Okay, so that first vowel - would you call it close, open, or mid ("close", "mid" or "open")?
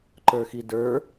mid